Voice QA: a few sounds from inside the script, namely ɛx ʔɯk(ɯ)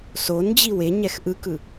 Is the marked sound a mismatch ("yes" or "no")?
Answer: no